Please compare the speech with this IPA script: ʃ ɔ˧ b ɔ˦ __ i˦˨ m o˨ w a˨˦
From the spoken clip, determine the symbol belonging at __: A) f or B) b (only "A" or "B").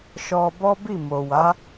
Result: B